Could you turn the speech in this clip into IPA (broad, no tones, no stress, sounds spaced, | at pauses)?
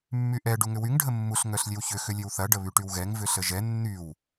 mː y ʔ ɛ ɖ u ŋ ʏ w y ŋ ɖʱ ə mː u ɬ ŋ œ ɬ lʲ e w ç ʏ x ʏ lʲ e w θ ɐ ɖ ə β y ʈ y w ɣ ɛ ŋ v ʏ ɬ ə ʒ ɛ nː y w